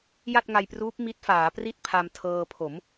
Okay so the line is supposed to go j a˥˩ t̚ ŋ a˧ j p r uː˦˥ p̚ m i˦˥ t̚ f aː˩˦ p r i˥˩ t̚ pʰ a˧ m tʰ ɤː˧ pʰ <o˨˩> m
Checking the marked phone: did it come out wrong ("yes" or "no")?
yes